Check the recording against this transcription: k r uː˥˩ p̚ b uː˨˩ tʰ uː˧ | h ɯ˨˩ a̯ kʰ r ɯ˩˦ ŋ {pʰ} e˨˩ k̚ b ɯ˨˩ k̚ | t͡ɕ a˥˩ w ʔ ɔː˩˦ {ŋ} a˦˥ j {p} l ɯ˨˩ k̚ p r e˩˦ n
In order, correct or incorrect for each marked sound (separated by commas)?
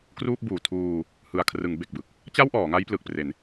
incorrect, correct, correct